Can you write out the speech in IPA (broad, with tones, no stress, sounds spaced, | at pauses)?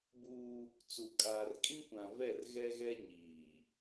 b uː˦ | t͡s u˨ kʼ aː˨ r kʼ ĩ˦ kʷ ã˨ v ɛ˦˨ r ɣ ɛ˦ ɣ ɛ˦ ɲ iː˨